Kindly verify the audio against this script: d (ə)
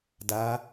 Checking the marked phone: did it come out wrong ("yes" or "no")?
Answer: yes